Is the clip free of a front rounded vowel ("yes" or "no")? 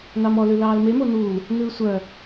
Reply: no